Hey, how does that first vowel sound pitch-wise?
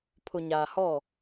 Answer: low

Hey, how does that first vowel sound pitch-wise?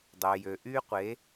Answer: low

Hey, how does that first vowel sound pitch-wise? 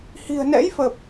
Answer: low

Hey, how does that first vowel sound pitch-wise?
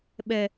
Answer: high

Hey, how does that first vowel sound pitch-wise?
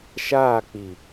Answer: falling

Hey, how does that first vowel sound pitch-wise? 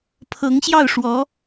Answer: rising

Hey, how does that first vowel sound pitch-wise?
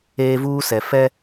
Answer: high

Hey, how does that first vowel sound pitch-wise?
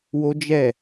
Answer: high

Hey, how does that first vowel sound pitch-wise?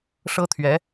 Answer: high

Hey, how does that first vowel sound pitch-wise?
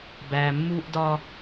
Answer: low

